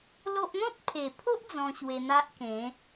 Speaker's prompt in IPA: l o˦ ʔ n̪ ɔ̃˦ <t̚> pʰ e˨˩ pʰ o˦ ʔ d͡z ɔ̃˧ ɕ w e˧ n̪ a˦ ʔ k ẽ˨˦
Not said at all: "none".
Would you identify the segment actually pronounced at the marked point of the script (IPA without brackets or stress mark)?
t̚